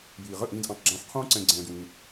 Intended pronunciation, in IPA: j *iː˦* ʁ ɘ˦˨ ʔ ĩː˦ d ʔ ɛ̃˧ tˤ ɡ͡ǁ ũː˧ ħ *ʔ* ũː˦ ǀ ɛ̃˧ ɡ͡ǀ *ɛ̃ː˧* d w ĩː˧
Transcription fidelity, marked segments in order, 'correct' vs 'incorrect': incorrect: iː˨, incorrect: qʰ, correct

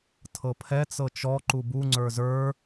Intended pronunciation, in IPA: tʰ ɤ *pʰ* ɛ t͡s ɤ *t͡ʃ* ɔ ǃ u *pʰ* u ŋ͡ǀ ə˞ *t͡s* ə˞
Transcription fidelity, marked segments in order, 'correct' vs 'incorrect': correct, correct, incorrect: b, incorrect: z

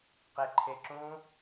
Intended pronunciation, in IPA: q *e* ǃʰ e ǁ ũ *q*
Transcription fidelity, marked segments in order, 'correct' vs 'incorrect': correct, incorrect: none

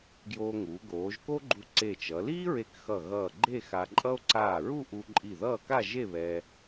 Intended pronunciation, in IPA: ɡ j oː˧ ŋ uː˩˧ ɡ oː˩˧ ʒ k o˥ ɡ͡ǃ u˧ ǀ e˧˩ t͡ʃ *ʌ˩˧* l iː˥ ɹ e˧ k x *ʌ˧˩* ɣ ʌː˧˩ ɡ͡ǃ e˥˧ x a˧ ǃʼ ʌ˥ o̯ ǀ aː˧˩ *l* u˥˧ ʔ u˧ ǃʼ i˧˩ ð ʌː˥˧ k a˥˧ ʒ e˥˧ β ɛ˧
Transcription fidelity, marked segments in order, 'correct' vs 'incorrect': correct, correct, incorrect: ɹ

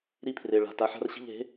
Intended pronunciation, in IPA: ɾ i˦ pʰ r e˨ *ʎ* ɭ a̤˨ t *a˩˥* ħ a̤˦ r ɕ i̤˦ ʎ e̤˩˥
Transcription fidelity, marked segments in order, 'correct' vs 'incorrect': incorrect: none, correct

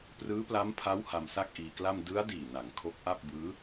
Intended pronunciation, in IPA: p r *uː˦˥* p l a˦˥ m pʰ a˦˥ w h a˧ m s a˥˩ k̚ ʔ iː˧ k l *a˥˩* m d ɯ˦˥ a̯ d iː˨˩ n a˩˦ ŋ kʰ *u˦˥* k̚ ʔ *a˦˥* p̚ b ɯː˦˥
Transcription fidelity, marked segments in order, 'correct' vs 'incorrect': incorrect: ɯː˦˥, correct, incorrect: o˦˥, incorrect: a˥˩

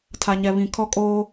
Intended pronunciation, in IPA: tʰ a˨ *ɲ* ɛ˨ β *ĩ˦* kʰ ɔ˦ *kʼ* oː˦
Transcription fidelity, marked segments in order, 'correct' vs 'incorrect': correct, incorrect: ĩ˨, correct

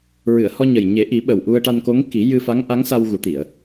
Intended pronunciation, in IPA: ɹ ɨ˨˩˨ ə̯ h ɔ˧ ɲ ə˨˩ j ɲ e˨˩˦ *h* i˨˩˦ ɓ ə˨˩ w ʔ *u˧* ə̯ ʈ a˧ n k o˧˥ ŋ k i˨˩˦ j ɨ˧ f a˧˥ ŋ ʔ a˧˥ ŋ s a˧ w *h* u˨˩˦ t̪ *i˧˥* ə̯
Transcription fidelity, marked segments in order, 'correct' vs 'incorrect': incorrect: ʔ, correct, incorrect: ɣ, incorrect: i˨˩˨

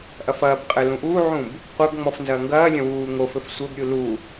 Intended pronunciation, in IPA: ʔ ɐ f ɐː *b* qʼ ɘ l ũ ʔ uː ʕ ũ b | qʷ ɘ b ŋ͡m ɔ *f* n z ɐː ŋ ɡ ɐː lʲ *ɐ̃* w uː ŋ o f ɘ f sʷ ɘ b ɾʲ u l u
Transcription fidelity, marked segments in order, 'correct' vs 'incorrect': correct, correct, correct

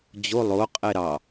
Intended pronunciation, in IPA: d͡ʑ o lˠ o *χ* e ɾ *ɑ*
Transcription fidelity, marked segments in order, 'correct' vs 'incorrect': incorrect: qʼ, correct

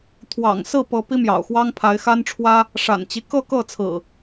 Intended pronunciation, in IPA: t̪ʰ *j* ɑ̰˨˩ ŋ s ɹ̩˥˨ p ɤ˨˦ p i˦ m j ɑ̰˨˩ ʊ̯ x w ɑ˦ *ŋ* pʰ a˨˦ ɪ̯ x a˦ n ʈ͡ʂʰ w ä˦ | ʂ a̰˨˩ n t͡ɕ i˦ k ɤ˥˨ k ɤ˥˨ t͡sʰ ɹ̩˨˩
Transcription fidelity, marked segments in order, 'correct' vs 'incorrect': incorrect: w, correct

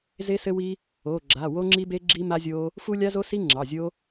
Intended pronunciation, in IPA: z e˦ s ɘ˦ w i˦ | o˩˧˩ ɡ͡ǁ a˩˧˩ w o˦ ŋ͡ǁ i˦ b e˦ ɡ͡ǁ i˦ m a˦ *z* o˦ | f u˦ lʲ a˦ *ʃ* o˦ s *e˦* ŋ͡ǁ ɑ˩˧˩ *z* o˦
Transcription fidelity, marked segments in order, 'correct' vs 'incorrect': incorrect: zʲ, incorrect: z, incorrect: i˦, incorrect: zʲ

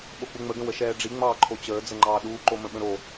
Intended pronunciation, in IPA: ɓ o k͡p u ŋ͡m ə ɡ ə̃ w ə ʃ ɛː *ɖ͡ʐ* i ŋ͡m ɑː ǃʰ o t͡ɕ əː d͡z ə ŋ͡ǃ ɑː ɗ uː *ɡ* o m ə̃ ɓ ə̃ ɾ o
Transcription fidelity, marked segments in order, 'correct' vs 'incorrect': correct, incorrect: ǃ

